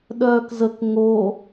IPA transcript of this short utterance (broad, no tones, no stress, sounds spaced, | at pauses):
ɗ œː k z ə k ŋ o